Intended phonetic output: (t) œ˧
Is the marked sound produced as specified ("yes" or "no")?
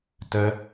yes